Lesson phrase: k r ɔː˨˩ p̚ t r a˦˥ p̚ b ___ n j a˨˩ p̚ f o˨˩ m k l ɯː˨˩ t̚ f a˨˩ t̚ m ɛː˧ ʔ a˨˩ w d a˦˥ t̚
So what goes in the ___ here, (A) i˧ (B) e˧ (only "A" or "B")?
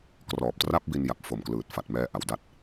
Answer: A